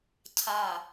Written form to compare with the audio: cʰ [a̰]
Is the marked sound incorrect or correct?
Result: incorrect